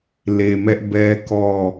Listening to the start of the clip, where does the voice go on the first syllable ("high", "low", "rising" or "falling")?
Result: low